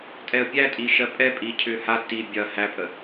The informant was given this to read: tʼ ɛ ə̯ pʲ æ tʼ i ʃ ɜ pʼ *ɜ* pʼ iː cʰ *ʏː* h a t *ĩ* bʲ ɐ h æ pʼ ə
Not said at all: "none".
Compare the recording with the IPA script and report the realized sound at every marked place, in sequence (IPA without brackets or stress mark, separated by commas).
ɛ, ʏː, i